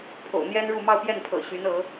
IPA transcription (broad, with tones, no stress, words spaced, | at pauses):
pʰo̰˨˩ʊ̯n̪jɛ˥nɻu˥˧ mɑ˥˧ʊ̯pjɛ˥˩npʰɤ̰˨˩ ɕy˧˥nɤ˧˥